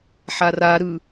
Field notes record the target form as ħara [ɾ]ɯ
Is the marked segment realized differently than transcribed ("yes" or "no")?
no